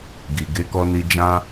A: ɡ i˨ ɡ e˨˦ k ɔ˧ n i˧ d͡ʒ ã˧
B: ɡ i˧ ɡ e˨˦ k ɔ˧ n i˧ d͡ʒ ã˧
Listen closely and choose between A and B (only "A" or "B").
A